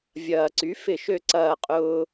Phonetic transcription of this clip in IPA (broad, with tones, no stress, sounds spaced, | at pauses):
vʲ ɐː˩ ǀ y˩˥ f ɪ˧˩˧ ʃ ø˧˩ ǀ ɐː˧˩ qʼ ʊː˧